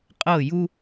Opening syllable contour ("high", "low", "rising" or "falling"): falling